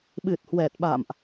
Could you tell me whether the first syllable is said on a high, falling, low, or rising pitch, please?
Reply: low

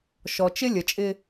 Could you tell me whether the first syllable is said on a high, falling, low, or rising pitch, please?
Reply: low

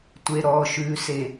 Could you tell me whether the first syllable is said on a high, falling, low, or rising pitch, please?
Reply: low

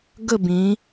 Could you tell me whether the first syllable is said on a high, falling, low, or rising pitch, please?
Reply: falling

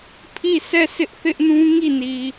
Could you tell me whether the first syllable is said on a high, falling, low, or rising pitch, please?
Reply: falling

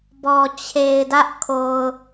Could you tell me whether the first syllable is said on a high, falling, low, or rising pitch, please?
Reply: low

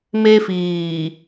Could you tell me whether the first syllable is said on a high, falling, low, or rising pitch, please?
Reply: high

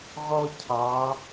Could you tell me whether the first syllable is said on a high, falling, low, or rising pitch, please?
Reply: high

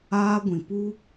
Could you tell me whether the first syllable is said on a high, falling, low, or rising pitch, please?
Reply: high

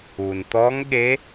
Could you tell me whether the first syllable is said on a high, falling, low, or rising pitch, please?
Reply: low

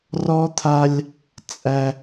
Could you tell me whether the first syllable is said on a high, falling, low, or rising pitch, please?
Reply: high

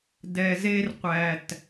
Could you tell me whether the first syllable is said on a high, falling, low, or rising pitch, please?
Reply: low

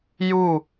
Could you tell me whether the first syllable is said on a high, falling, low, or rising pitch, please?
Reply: falling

